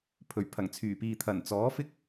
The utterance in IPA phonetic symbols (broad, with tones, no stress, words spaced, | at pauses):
pʰɵ˨˩ɥpʰɐ˨˩ŋt͡sʰyː˨˩piː˨ t̪ʰɐ˨˩n t͡sɔː˨˥fɪ˥k̚